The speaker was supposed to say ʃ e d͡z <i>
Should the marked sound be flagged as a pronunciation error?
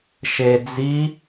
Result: no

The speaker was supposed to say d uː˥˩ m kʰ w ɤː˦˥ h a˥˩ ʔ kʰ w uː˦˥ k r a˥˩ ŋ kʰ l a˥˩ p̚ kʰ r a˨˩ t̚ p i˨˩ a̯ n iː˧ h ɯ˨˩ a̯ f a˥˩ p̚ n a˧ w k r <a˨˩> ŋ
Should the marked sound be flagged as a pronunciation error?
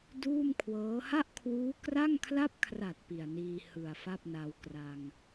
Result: yes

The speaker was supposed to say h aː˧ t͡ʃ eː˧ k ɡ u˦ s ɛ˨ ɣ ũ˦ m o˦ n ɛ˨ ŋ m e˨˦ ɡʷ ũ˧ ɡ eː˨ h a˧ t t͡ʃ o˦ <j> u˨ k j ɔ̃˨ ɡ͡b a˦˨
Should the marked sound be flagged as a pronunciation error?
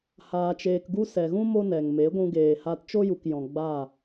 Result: no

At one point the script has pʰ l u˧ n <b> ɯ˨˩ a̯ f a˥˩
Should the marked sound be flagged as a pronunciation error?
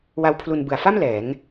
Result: no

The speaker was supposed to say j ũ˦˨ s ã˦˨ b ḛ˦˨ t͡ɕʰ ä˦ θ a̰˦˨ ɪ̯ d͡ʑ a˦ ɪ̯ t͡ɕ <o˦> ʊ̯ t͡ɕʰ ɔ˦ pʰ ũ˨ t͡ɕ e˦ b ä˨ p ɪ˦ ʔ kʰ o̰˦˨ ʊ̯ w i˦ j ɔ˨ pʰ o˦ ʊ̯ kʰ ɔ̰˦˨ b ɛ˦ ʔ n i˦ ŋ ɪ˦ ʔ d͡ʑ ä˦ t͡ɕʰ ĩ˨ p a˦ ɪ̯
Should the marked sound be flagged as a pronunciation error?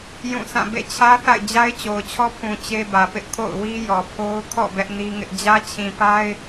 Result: yes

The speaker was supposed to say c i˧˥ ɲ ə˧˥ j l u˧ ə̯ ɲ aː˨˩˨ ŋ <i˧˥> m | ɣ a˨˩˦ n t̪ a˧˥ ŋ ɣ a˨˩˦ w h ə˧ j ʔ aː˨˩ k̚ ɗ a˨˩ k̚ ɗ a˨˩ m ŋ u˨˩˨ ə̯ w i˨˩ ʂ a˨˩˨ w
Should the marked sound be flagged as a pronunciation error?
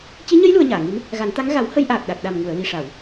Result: no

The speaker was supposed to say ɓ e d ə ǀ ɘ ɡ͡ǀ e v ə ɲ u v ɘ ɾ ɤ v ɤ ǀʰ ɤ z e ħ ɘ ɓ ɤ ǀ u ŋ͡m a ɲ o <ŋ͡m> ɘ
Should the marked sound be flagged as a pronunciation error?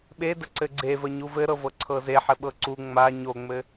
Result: no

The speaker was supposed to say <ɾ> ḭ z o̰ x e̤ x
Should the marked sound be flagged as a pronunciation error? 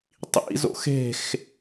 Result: yes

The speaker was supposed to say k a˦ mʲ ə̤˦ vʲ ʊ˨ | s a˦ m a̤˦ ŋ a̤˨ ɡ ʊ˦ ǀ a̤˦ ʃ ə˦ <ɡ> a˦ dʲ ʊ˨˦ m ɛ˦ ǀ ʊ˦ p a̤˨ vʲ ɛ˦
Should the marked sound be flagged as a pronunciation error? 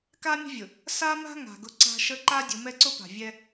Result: yes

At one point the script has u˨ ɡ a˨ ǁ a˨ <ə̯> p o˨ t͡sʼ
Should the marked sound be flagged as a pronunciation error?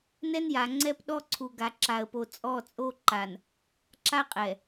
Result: no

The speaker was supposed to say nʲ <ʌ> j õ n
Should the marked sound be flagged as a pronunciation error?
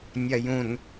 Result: yes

